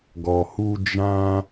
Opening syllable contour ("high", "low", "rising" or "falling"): low